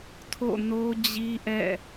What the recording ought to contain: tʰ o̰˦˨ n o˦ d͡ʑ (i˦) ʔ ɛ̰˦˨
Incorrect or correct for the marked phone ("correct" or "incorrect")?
correct